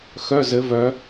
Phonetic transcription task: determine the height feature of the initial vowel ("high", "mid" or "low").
mid